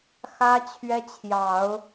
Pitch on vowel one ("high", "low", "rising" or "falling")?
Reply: high